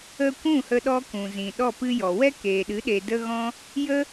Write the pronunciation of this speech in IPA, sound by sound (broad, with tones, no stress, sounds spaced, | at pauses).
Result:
ə˦ kʷ ũ˦˨ h ə˧ ɗ ɔ˧ k ũ˨ z ĩ˨ ɗ ɔ˦˨ p ɨ˦ j ɔ˨ w ɛ˦ k eː˨ ɗ ɨ˨˦ ɗ e˨ d ə˦ ɣ ɔ̃˦ | j ə˦